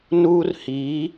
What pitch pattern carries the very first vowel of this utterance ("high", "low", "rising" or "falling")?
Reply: high